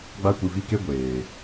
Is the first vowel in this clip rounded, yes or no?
no